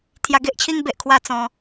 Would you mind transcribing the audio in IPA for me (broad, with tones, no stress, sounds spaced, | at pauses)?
t̪ʰ j a˧ ɡ e˦ ʔ t͡ɕʰ i˦ ŋ b e˨ ʔ kʰ w a˥˧ t͡s ɔ̃˧